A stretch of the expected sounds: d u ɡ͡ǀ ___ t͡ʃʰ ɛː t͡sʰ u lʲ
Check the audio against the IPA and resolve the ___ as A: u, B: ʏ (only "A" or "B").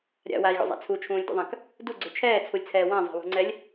B